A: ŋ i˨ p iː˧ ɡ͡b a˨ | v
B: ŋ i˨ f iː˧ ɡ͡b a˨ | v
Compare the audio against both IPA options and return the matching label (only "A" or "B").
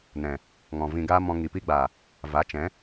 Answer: A